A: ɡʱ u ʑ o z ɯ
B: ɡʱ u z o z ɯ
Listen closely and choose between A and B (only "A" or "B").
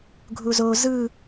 B